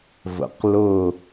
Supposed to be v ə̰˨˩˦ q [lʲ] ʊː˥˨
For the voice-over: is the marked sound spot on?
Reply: no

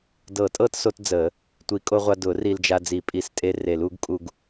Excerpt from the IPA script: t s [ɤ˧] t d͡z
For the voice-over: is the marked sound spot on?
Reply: no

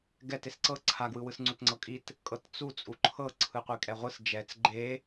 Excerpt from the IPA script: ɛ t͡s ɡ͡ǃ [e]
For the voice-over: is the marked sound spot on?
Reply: yes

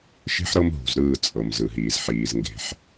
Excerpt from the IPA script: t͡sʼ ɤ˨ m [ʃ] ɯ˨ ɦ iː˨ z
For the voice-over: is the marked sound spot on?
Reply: no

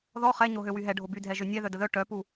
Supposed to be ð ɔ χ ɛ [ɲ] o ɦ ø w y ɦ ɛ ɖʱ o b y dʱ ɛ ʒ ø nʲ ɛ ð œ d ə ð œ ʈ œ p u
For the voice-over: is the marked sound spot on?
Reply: yes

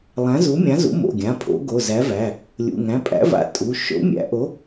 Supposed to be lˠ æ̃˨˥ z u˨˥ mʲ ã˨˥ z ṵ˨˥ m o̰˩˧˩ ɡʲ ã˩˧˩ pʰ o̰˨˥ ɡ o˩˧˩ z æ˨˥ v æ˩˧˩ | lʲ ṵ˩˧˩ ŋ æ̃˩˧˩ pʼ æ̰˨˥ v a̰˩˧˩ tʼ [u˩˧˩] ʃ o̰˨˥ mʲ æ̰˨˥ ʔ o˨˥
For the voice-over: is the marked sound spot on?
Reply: yes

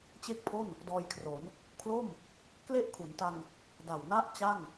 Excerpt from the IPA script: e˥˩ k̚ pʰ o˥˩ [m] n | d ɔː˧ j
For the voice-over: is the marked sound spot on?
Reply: no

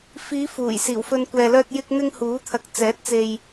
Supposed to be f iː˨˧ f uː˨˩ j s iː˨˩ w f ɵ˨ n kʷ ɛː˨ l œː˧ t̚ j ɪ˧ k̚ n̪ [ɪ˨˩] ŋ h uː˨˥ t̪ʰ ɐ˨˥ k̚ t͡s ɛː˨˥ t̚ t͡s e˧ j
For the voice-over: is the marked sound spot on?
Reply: no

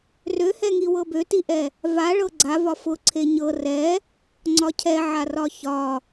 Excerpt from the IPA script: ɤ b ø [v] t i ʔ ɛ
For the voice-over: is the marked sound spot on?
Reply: no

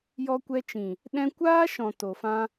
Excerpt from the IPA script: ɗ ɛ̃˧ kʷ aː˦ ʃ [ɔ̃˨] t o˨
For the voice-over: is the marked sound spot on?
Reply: yes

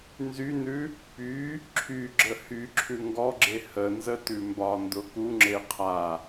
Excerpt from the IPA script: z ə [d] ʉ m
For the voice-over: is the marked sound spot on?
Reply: no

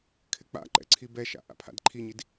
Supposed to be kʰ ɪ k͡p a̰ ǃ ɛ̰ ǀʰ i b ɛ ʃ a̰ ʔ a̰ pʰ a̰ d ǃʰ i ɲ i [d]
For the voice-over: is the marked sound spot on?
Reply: yes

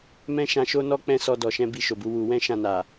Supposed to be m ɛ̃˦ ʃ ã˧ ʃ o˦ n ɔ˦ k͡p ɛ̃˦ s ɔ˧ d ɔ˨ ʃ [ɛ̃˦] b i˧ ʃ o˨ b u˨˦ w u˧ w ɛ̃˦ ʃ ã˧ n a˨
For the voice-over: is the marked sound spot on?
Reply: no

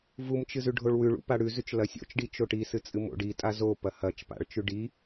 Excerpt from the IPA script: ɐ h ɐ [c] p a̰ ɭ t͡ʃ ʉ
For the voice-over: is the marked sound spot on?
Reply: no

